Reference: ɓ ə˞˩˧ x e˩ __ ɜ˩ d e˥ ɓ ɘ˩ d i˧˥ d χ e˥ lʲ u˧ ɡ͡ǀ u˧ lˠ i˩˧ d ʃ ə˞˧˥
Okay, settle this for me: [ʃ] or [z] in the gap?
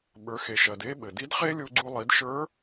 ʃ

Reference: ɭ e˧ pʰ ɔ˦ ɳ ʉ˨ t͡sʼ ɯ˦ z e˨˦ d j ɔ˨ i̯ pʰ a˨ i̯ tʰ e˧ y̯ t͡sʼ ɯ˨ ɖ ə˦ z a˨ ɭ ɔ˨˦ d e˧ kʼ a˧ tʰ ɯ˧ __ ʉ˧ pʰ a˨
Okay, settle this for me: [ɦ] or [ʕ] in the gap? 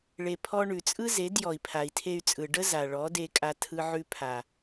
ʕ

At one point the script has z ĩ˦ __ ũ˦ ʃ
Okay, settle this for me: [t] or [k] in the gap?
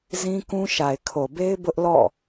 k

